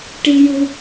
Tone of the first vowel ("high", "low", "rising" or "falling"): high